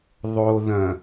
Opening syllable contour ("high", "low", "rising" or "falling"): low